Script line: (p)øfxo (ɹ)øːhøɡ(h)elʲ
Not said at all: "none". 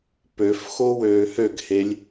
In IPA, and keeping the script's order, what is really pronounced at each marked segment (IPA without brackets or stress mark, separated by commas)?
p, w, h